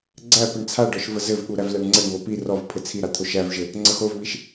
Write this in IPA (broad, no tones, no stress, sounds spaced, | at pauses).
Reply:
ɡ͡ǀ æ p ɘ ɳ t͡sʰ a ɖ ɔ ʃ v ə z ɘ v ɠ u ɾ æ v l æ ɳ ŋ͡ǀ ə ɳ β o p i r ɔ v pʰ ɘ t͡sʰ i ɾ a t̪ʰ o ʃ æ v ʒ ɘ | ŋ͡ǀ ə x o v β i ʃ